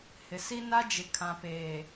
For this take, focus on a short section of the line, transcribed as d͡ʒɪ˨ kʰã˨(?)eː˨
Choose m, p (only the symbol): p